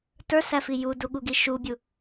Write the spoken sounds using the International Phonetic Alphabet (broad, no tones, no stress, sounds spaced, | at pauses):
t ə˞ s æ f i j u d u ɠ u ɡ i ʃ u bʲ u